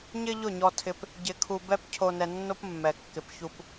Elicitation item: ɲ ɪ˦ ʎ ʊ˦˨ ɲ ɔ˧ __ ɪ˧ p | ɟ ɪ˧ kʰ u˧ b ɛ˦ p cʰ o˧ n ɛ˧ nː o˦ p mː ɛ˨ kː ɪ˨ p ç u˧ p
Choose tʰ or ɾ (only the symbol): tʰ